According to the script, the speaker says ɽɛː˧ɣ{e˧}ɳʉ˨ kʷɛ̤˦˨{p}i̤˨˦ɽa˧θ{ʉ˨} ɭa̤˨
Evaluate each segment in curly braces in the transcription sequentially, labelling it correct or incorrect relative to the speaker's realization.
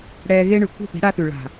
incorrect: e˦, correct, correct

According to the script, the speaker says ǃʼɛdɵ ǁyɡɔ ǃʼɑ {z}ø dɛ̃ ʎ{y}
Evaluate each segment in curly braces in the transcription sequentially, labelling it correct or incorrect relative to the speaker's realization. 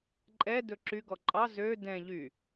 correct, correct

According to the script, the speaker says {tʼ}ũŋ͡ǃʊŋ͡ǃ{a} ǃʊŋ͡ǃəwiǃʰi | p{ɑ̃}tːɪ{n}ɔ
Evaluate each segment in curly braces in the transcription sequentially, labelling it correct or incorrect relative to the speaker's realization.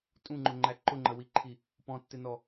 correct, incorrect: æ, incorrect: ɔ̃, correct

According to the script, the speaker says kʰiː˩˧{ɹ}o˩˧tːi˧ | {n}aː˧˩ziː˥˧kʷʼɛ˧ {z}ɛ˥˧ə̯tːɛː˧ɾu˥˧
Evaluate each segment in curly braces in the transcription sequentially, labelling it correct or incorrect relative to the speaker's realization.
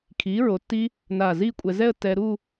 correct, correct, correct

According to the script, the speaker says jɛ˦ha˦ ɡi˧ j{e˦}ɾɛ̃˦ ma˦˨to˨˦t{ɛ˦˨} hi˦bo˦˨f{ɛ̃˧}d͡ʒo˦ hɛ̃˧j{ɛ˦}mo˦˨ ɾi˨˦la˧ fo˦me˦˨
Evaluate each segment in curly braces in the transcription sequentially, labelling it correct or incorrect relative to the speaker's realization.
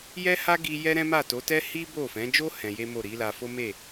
incorrect: ɛ˦, incorrect: ɛ˦, incorrect: ɛ̃˨˦, incorrect: e˦

